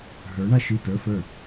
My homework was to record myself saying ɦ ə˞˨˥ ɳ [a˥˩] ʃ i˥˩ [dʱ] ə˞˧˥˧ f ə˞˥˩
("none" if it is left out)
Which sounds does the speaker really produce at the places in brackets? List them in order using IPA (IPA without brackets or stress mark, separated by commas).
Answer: a˥˩, t